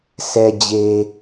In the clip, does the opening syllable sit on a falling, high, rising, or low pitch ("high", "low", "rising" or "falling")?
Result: low